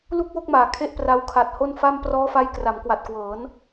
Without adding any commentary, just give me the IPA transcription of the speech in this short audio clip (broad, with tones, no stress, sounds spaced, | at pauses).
l u˥˩ k̚ w o˥˩ k̚ m aː˨˩ kʰ e˥˩ ʔ p r a˦˥ w kʰ a˨˩ t̚ h o˥˩ n f a˥˩ m p r ɔː˦˥ f a˦˥ j k r a˩˦ m k w a˨˩ t̚ k w ɤː˩˦ n